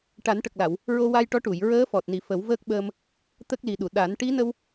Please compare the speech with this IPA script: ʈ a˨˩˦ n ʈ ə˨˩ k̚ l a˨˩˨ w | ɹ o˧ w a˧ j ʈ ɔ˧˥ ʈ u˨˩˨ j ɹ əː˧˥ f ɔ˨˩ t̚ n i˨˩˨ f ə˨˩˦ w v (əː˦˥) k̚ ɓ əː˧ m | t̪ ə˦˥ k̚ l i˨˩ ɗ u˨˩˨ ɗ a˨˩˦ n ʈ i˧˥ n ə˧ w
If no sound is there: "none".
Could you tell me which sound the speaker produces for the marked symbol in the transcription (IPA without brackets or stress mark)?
əː˦˥